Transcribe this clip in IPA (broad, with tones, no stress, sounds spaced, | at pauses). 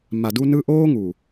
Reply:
m a˨ d u˧ n ɯ˧ ʔ oː˦ ŋ u˨